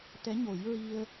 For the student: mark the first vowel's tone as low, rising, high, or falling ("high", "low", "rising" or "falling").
rising